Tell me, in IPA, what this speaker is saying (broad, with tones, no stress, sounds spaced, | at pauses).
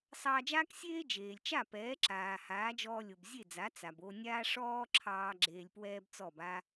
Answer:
sˤ ɑː˧ d͡ʒ aː˥ k sʲ eː˥ d͡ʒ eː˩ lʲ t͡ʃ a˥˩ p ɛː˩˥ ǁ aː˩ h aː˩˥ d͡ʒ ɔː˧ lʲ o˩ b zʲ e˥˩ d͡z a˩˥ t͡s a˩ b o˧ nʲ aː˥ ʂ ɔː˥ ǁʰ ɑː˧ ɡ͡ǁ eː˧ lʲ p w ɛː˥ b t͡s ɔ˥˩ b a˥